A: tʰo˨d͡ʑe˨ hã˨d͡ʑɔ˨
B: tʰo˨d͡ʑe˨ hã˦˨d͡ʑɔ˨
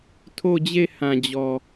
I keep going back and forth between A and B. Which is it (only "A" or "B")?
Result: A